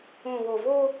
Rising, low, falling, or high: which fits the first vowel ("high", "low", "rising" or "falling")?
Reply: low